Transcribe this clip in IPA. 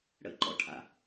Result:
ɽ ə̰ ǃ ɔ̰ ʈʰ a̰

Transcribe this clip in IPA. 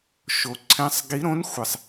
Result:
ʃ o˩˧ ǀʰ ɛ̃˧˥ sˤ ɡ i˧˥ ɾ õ˧˥ n xʷ ɪ˩ sˤ

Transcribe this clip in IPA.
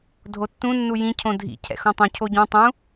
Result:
dʱ o tː ũ nː u j ĩ cʰ õ dʱ ḭ cʰ ɛ̰ x õ tˤ ũ cʰ o ɟ õ tˤ ũ

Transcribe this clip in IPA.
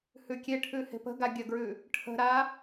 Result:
h ʉ kʲ e ʈʰ ʉ h e̤ p ə̤ ɡ a ɡʲ ə ɡ ɹ ʉ | ʈʰ ə̤ ɾ a

